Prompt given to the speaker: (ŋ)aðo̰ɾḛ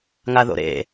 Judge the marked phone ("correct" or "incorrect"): correct